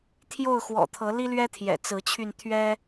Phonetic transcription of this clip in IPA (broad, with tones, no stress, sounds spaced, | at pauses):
t̪ʰ j o˥˨ ʊ̯ x w ɔ̰˨˩ t̪ʰ ɤ˨˦ l i˦ l ɥ ɛ˦ t̪ʰ j ɛ̰˨˩ t͡s ɹ̩˨˦ t͡ɕʰ y˧ n t̪ʰ ɥ ɛ˦